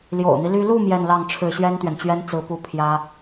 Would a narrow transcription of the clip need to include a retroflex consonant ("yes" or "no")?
yes